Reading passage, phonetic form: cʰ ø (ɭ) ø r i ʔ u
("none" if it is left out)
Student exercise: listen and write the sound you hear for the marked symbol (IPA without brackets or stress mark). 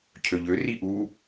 ʎ